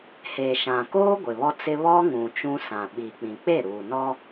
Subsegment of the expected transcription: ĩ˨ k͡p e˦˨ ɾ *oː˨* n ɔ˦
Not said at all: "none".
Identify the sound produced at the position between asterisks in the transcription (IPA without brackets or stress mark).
uː˨